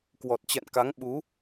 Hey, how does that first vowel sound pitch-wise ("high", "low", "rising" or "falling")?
low